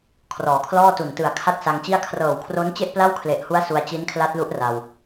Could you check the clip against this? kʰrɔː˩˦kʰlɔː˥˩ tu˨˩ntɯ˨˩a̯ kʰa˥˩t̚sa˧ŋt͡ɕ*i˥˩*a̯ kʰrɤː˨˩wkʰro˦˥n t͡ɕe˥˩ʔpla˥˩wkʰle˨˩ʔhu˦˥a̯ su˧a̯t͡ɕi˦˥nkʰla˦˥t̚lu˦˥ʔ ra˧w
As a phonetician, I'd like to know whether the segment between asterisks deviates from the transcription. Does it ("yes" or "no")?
no